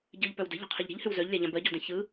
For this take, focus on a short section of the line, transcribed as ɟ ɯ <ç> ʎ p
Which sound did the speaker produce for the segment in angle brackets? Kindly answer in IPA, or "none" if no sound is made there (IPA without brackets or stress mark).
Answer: none